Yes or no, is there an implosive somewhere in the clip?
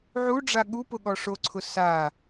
yes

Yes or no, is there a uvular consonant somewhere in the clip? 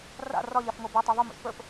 no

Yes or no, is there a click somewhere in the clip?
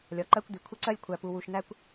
yes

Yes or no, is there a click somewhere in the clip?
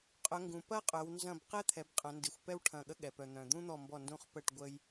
no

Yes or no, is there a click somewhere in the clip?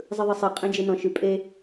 no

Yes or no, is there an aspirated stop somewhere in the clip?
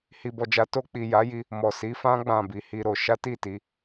no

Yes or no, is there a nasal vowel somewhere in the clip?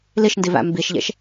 no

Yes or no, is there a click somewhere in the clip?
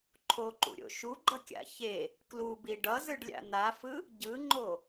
yes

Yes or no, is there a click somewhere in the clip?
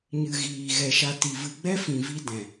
no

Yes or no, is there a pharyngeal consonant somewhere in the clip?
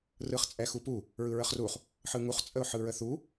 yes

